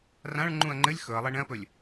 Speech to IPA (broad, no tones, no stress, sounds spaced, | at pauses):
r ã ɭ ŋ͡ǃ ũ ɐ̯ ŋ͡ǃ ɘ lʲ x ɵ ɐ̯ lˠ ɛ ɳ ɛ̃ ɐ̯ p ɵ lʲ